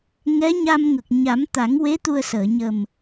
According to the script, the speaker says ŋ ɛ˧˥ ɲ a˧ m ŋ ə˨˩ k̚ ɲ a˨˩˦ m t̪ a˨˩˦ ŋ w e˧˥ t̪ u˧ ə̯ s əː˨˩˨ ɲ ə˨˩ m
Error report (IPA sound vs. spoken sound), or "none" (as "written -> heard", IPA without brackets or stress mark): none